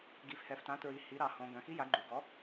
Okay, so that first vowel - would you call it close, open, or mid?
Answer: close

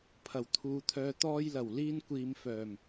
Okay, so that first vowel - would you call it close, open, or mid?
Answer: open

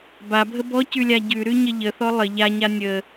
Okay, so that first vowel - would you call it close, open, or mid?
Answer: open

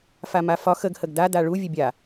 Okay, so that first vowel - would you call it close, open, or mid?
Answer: open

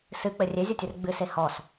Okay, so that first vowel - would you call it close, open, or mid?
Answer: close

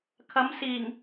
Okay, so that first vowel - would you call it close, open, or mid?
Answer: open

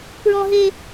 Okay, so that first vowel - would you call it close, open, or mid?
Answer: mid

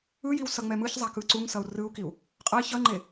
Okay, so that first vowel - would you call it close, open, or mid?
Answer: close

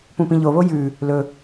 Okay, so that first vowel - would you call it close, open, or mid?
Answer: close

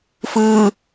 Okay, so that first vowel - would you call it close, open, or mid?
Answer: close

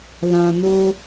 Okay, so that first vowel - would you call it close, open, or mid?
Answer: open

